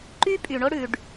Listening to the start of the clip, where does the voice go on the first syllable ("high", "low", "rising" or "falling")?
high